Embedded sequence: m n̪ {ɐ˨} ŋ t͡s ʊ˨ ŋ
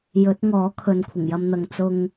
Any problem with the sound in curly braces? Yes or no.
no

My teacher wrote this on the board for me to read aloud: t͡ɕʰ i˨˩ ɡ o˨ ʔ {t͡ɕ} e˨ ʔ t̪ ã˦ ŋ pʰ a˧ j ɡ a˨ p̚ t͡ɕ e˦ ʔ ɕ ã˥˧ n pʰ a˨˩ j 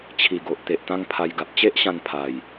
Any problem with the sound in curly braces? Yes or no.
yes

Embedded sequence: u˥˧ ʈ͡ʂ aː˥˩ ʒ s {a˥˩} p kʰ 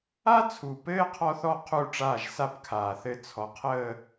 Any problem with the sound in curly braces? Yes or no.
yes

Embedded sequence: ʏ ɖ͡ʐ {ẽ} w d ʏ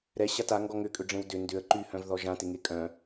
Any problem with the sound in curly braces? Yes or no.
no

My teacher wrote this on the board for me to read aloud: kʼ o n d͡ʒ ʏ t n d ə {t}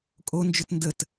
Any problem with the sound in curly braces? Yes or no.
no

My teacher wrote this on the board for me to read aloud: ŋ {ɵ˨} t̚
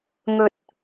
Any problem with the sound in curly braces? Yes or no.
no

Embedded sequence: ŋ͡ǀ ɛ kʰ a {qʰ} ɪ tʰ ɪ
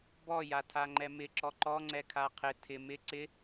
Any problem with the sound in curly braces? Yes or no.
no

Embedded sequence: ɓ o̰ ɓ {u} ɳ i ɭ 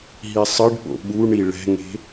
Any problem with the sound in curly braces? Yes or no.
no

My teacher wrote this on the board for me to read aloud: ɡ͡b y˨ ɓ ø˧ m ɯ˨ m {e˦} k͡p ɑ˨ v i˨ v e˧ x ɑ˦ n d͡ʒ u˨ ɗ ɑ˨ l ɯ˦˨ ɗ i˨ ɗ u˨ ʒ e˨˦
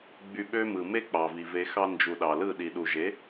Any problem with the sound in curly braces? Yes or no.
no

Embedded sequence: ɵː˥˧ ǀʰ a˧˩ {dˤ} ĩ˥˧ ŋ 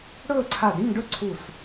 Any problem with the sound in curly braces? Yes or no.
yes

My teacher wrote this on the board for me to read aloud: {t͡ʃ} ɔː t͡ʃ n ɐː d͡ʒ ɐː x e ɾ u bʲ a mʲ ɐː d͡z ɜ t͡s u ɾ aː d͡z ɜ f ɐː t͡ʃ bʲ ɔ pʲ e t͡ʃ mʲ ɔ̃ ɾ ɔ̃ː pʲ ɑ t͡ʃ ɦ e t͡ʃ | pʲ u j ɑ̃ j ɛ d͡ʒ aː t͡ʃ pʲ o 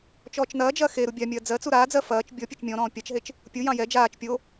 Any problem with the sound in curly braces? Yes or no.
no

